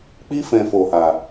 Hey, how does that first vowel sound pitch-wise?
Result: high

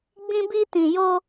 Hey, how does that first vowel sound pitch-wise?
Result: high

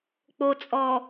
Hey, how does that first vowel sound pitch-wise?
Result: low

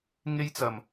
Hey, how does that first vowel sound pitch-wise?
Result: high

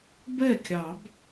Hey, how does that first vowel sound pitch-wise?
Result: falling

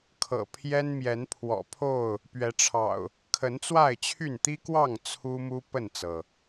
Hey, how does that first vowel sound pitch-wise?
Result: low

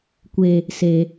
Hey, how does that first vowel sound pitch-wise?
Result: high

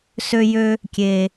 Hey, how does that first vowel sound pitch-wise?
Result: high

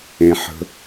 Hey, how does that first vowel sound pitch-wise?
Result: low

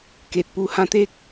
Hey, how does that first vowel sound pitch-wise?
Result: low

